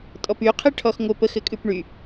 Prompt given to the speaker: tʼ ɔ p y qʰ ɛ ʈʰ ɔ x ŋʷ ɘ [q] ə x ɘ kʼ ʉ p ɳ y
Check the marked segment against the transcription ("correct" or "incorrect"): incorrect